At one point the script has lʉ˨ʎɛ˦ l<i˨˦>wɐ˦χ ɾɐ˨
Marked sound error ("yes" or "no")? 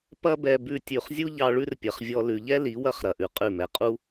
no